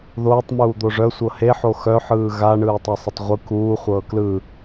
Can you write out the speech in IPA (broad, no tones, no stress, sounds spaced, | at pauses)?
ð oː tˤ m uː d̪ o ʐ œ sʷ ɤ h e ħ o x œ ħ ɯː ɣ a ɳ ɯː tˤ ɤ sˤ ə tˤ ʁʷ ɯ k uː χʷ ɤː k l ɯ